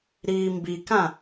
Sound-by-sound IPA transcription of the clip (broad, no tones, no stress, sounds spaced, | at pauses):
ɾ iː m b i k ã